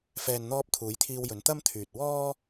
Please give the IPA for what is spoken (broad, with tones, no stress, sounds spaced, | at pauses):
f ɛː˨ n n̪ ɔː˧ p̚ t̪ʰ uː˨˧ j t̪ʰ iː˧ w j ɵ˨˧ n t̪ ɐ˥ m t̪ʰ yː˨ t̚ w ɔː˥